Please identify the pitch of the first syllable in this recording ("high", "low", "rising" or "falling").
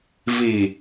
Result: low